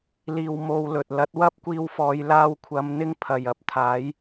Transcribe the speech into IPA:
l iː˧ w m o˧ w l ɵ˨ t̚ l ɐ˥ t̚ w ɐ˥ p̚ kʷ iː˧ w f ɔː˨˧ j l aː˧ w kʷʰ ɐ˨˧ m n̪ ɪ˥ ŋ pʰ ɐ˨ j ɐ˨ p̚ t̪ʰ aː˨˥ j

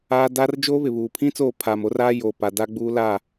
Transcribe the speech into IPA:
aː˦ d a˦ r d͡ʒ oː˦ β ɪ˨ β uː˨ pʰ ĩ˦ t͡s oː˦˨ pʰ aː˨ m o˦ r aː˦ j oː˨ p a˨ d a˦ ɡ͡b uː˦ l a˦˨

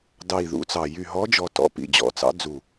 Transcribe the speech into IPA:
d ɑ˨˩ i̯ ð ṵ˨˦ t͡s ɑ˨˩ j y˨˩ ɦ ɔ˨˦ d͡ʒ ɔ˨˩ t ɔ̰˨˦ p ḭ˨˩ d͡ʑ ɔ̰˨˩ t͡s ɑ̰˨˦ d͡z u˨˩

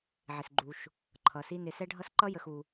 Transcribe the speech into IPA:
ʕ ɪ˩ s ɡ͡ǃ u˩ ʃ | ǃʰ ʌ˩ s i˦ n ɪ˨ s ɛ˦ ɖʱ ʌ˦ s ǃ ʌ˥ j ə˨ x u˩

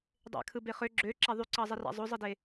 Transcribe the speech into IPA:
dˤ ḛ kʰ ɯ b e χ ø ɡ͡ǁ ø ǁ æ ðˤ y ǀ ɑ zˤ i r æ̰ zˤ o zˤ ɯ d e

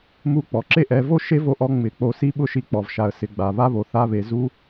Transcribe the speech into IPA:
m u˧ k͡p ɔ˨ ǁ e˦ ʔ ɛ˨˦ v o˦ ʃ e˦ v o˧ ʔ ɔ˧ ŋ͡m ɪ˨˦ k͡p o˧ s i˦ ɓ ʊ˦ ʃ i˧ k͡p ɔ˨ v ʃ a˨ ə̯ s ɪ˨ ɡ͡b a˨ β a˦ β o˨ θ a˦ β e˧ z u˦

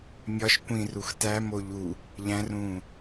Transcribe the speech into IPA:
mʲ ɒ ʃ kʷ ĩ r u x t æ m o ʎ u | ʎ æ̃ r ũː

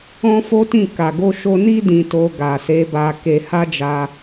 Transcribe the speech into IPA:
ɔ̃˦ f o˦ t ĩ˦˨ k a˨ ɡ o˧ ʃ o˧ n i˦ d ĩ˧ t o˧ ɡ a˨ s e˨˦ b a˧ k e˧ h a˦ d͡ʒ a˧

